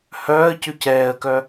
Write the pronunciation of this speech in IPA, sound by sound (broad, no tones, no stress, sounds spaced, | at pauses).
h œː ə̯ c y c ɛː ə̯ k œ